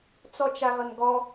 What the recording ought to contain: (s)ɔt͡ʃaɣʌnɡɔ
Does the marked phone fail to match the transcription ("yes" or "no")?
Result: yes